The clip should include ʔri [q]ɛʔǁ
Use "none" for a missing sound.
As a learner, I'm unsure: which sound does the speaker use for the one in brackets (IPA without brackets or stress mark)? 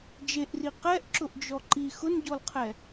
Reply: q